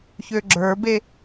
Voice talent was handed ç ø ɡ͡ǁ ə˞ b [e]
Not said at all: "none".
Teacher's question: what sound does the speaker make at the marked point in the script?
e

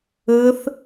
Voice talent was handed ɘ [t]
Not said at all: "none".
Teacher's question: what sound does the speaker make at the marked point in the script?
θ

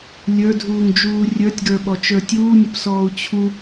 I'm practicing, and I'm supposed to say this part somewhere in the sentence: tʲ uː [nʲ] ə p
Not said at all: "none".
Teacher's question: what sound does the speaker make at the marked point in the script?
nʲ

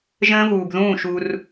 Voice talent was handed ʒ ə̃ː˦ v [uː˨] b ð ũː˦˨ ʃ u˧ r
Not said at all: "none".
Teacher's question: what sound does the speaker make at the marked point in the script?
uː˨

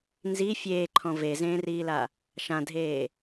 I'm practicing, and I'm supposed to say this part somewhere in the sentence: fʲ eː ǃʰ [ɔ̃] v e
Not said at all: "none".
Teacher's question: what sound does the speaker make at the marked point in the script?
ɔ̃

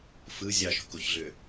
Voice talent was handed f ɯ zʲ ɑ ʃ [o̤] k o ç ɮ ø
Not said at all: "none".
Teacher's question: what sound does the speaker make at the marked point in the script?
o̤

